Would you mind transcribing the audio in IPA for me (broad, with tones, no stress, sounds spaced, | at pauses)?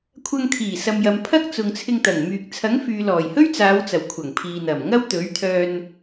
kʷʰ ɐ˧ ŋ t̪ʰ iː˨˩ s ɐ˨ m j ɐ˨ m pʰ ɐ˥ k̚ t͡s ʊ˨ ŋ t͡sʰ ɪ˧ ŋ t̪ ɐ˨˩ ŋ m yː˨ k̚ t͡sʰ ɐ˨˥ ŋ f yː˨ l ɔː˨˩ j h ɵ˥ ɥ t͡s aː˨˧ w t͡s ɐ˨˩ w kʷʰ ɐ˨˩ ŋ pʰ iː˨ n̪ ɐ˨˩ m ŋ ɐ˥ w t̪ ɵ˨˥ ɥ t̪ʰ œː˧ n